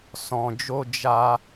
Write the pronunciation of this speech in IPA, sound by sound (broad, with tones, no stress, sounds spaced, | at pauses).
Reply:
s ɔ̃˧ d͡ʒ o˦ d͡ʒ a˦